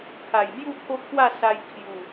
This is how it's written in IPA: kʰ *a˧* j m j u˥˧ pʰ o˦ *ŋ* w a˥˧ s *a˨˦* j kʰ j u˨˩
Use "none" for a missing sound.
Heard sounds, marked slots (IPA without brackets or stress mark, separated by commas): a˨˩, kʰ, a˧